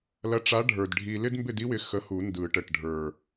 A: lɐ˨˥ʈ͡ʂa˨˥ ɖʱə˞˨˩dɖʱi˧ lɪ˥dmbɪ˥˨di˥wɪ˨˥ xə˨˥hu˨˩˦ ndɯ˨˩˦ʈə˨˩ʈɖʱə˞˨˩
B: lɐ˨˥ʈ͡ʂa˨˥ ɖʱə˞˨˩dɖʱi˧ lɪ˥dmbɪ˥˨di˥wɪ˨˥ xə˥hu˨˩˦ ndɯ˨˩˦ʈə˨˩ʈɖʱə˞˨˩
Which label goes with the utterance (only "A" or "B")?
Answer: A